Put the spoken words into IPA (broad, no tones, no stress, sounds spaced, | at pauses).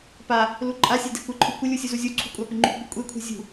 p a | l u ǃʼ a sʲ e d e̤ kʷ ɪ ǃʰ u kʷ ɪ lʲ u sʲ u z u zʲ u ǀʰ ṳ kʷʼ a p ɪ ŋ͡ǃ ṳ kʷ ɯ kʷʼ e kʷʰ e̤ zʲ ṳ